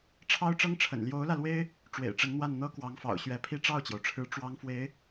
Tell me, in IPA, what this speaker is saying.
ʈ͡ʂʰ ɑ˥ ʊ̯ ʈ͡ʂ ɤ˥ ŋ ʈ͡ʂʰ ə̰˨˩ n l j o˧˥ ʊ̯ l ä˧ l w e˥ ɪ̯ | ʈ͡ʂ w ḛ˨˩ ɪ̯ ʈ͡ʂ ə˧˥ n n̪ w a˥˩ n n̪ ɤ˥ k w ɑ˧˥ ŋ f ɑ̰˨˩ ʊ̯ ɕ ɥ ɛ˧˥ pʰ i˥ ʈ͡ʂ ɑ˥˩ ʊ̯ t͡ɕ j o˩ ʊ̯ ʈ͡ʂʰ ɻ̩˧˥ ʈ͡ʂ w ɑ˥ ŋ f w e˧˥ ɪ̯

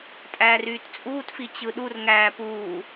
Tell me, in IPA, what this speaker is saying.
tʼ æː r yː t t͡sʼ uː t f i t͡ɕ ɯ ɗ u r ŋ æː p uː

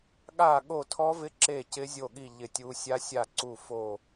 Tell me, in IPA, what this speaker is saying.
ɠ a˦˨ ɠ o˦˨ tʰ ɔ˦˥ v ɪ˦˥ ǁ e˦˨ c ɪ˦˥ zʲ o˦˨ ɠ i˦˨ ʎ ɪ˦˨ tʲ u˦˥ sʲ a˦˥ sʲ a˦˨ ǀ u˦˨ f o˦˨

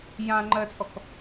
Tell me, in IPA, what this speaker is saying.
j ã ŋ͡ǃ ɜ t͡sʼ ɔ k

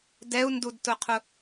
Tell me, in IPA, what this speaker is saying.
d ɛ u̯ n d u d t ʊ qʰ ʊ

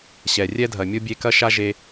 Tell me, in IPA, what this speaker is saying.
ɕ ɛ˨ rʲ ɛ˥ dʱ ɐ˨ mʲ o˥ bʲ e˦ k ɐ˥ ʃ a˥ ʒ e˦

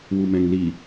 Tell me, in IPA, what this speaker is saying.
w u m ɛ̃ ŋ l i

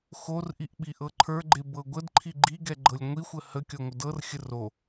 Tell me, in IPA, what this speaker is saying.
x o r ʔ i ʔ ɓ i ʔ ɤ ǃʰ ə˞ ɡ͡ǃ e b ɤ ɡʷ ə d ǃʰ i ɡ͡ǃ i ɡ ɛ ɡ͡ǃ ɤ lʲ ŋʷ i xʷ ə h ə kʲ ɔ ŋʷ ə d ɤ r xʲ ə r o

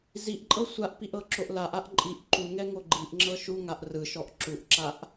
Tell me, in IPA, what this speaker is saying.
z i ʔ ǃʼ ɤ sʷ a ʔ p i ʔ ɤ ǁ o ʔ l a ʔ a ʔ ǃʼ i ʔ ǃ u ŋ ɛ ŋ o ɡ͡ǃ i ʔ ŋ͡ǁ ɤ ʃ u ŋ a ʔ r ɯ ʃ ɔ ʔ ǁ u ʔ ǁ a ʔ

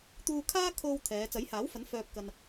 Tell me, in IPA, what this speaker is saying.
t̪ uː˧ kʰ aː˥ kʰ o˧ w t̪ʰ ɛː˨˧ t͡s ɐ˨˥ j h aː˨˥ w f ɐ˨˥ n f œː˧ p̚ k ɐ˧ n

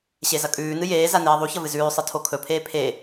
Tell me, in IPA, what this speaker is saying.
ɕ e z ɐ kʼ ʉː n ɨ j eː z a n eː ðˤ u ç ɐ v ɨ z ʉː sˤ ɨ tʰ o kʰ ɵ pʰ eː pʰ e

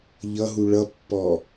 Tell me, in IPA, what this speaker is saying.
ʎ ʌ ɦ u ɭ ʌ pː ɔ

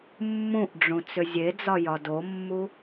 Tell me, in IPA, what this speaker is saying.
mː ũ ʔ ɖ͡ʐ ũ t͡s ʏ zʲ e d͡z ɒ j ɒ d o mː u

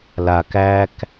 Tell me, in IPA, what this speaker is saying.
l a k æ k

